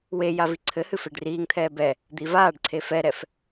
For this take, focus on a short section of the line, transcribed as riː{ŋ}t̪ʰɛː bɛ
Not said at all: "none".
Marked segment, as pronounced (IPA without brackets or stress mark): ŋ